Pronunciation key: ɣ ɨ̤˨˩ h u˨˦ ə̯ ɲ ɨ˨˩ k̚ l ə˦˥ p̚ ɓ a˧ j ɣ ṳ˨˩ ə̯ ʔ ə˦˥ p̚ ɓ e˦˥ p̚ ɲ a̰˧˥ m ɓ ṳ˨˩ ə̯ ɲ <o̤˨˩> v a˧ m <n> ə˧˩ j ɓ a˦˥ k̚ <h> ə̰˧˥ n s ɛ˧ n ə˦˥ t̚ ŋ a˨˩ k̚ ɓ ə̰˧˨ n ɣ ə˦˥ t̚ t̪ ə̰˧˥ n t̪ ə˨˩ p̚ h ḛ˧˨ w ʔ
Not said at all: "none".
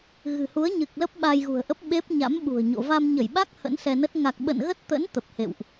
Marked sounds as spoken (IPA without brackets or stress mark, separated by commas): o̰˧˨, ɲ, h